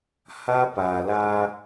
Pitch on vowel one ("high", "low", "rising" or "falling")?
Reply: high